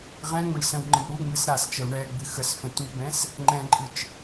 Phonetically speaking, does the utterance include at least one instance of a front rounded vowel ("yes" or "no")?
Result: no